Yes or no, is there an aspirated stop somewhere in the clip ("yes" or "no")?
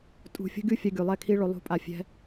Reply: yes